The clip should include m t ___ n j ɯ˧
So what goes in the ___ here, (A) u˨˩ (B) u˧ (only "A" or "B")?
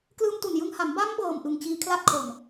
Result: A